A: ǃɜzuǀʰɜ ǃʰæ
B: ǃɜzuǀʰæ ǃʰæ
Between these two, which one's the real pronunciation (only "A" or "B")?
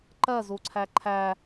B